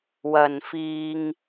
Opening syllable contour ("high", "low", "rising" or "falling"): low